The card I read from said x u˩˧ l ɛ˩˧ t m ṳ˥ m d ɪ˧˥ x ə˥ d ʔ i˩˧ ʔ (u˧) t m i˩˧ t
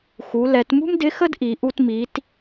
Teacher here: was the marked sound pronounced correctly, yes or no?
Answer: yes